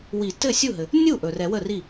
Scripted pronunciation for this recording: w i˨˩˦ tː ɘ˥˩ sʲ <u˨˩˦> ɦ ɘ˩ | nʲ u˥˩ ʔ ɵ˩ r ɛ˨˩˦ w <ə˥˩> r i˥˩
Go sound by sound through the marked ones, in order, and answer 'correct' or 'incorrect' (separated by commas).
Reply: incorrect, correct